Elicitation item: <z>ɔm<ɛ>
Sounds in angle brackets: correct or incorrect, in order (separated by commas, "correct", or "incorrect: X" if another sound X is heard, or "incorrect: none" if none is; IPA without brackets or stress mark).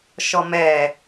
incorrect: ʃ, correct